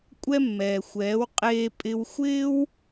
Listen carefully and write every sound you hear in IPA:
kʷʼɛ˥mːɛː˩xʷɛː˩˥w qʼeː˧pʼɪ˧wxʷɪː˥w

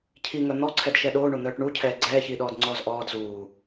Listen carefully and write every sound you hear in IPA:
cʰiŋœ n̪ɔǀʰɛdʃɛ ɗoːɳon̪œːʈ ɳucʰɛː ɡ͡ǀɛːçiːɗɔːdŋ͡ǀɔːz ʔɔːd zuː

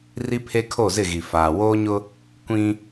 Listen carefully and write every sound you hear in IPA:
ri˦pʰe˦kʰo˦˨zɪ˦˨ ɣi˨faː˨ woː˦ɲʊ˦ | kʷĩ˦

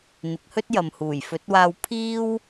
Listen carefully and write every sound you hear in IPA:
n̪ɪ˨˥k̚hɵ˥t̚ jɐ˨mhuː˨˩jfɵ˨˥t̚waː˧w pʰiː˥w

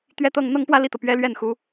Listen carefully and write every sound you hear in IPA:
t̪ɥɛ˥˧t̪ɤ˥˧ŋ n̪ɤ˥˧ŋpwä˥˧li˥˩t̪ɤ˩ pɥɛ˥lɥɛ˥˩nxu˧˥

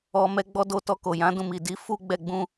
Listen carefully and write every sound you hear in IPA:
ɔ˧mɛ˦ɡ͡bɔ˦ do˧tɔ˧ko˨ jã˨˦dũ˦˨mi˨ di˨˦ fu˦ ɡ͡bɛ˦˨ ɡ͡bũ˧

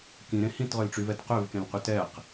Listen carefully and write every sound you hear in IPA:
kĩɾẽ hĩtʁølʈ͡ʂyvɛt qøvkẽlqy tɛq

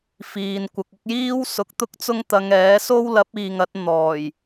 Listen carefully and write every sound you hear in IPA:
fiː˨n kʷɐ˨k̚ʊ˧k̚jiː˥wsʊ˨˥k̚ t̪ʊ˥k̚t͡sʊ˥ŋt̪ɐ˨˧ŋɛː˨˥ so˥wlɐ˨˥p̚ iː˨ŋɐ˨˥t̚n̪ɔː˨˩j

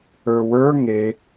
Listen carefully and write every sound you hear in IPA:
ə˞wə˞ ŋe

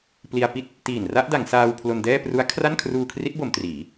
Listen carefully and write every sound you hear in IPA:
pli˧a̯pi˥˩t̚ | tiː˨˩n ra˥˩ʔda˩˦ŋsaː˧w pʰlo˧ndɛː˥˩ pru˦˥a̯kʰra˥˩n kʰruː˧kʰri˦˥t̚bo˩˦m triː˩˦

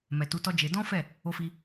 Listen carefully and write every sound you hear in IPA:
mɛ˨tu˨˦tɔ˦d͡ʒe˧ dɔ̃˦fɛ˦˨ | o˧fi˧

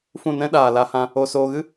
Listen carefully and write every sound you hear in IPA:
fũ˦˨nɛ̃˦ɗaː˨ la˧hã˧ | o˧soː˧ɣɨ˦

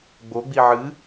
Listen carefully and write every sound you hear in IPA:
ɡ͡boɡ͡bi ʕɨ

